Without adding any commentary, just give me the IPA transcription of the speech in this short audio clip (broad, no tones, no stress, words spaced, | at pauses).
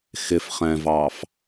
xɪfχɛ̃vɑf